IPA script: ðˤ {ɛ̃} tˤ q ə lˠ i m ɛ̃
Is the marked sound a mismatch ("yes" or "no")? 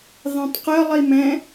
no